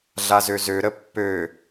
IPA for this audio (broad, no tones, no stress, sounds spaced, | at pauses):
ɮ a z ø z ø ɾ ə pː ø